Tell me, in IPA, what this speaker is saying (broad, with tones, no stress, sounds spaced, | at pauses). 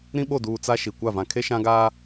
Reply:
ɾ ĩ˦ ɓ o˦˨ d uː˨ t͡s a˦ ʃ i˨ kʷ a˦˨ v ã˨ kʰ e˦ ʃ ã˦ ɡ aː˦